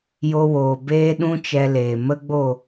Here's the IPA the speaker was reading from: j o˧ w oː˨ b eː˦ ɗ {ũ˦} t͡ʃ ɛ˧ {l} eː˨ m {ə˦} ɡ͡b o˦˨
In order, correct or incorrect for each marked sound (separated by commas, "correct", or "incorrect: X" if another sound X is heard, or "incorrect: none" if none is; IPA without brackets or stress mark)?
correct, correct, correct